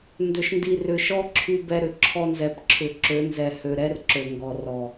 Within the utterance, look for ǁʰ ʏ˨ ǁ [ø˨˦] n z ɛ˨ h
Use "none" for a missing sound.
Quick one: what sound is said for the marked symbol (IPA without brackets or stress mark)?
ø˨˦